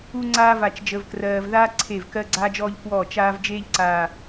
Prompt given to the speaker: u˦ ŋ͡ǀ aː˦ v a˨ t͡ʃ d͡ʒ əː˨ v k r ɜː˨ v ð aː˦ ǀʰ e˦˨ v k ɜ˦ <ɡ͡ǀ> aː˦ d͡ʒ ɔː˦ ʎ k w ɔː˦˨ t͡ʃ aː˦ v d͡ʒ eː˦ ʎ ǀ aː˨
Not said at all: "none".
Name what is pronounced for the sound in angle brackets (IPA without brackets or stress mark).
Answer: ɡ͡ǀ